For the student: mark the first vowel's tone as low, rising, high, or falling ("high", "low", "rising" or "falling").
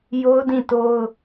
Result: high